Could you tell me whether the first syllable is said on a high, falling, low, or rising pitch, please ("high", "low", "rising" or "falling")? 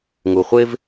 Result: low